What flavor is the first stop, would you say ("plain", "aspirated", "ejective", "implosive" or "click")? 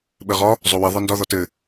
implosive